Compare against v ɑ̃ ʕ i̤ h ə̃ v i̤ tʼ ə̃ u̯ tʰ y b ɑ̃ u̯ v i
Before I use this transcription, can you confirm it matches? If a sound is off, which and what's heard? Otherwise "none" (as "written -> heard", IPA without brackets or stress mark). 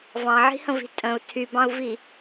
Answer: none